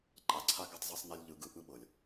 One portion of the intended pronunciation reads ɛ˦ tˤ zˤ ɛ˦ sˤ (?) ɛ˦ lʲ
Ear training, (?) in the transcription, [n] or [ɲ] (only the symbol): n